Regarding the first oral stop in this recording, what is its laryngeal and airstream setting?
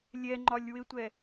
click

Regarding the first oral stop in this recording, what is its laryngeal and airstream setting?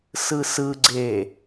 click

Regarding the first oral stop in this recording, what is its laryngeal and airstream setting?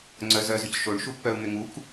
click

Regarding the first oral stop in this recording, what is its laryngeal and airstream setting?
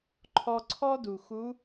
click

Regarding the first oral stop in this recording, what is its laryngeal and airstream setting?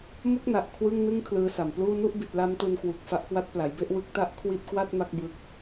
plain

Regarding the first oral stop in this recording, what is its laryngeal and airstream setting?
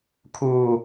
aspirated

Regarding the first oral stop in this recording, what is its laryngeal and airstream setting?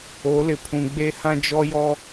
aspirated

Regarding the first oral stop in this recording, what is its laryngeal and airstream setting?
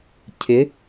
aspirated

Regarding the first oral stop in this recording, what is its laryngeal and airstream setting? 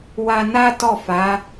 plain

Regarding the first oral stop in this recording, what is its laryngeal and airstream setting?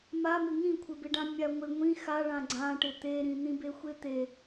aspirated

